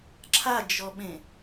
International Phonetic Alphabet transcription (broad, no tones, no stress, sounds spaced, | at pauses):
ǁʰ a d͡ʒ ɔ ɓ ẽ